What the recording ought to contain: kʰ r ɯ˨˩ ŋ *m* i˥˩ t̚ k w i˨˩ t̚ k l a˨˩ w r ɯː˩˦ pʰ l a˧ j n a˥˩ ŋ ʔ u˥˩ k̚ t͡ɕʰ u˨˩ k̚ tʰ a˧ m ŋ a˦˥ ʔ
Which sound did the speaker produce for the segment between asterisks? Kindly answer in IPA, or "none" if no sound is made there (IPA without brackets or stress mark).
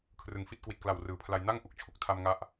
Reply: f